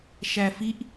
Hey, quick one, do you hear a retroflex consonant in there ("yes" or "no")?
no